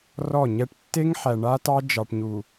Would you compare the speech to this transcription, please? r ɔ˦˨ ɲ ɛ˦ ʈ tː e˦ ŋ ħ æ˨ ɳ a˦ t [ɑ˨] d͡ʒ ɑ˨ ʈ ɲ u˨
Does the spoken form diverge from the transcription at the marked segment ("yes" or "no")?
yes